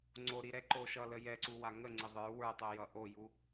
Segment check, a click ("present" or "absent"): present